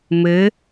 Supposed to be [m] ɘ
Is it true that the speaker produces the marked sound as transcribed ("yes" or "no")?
yes